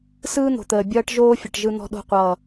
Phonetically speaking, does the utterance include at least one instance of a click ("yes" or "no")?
no